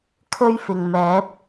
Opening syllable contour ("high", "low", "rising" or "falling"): high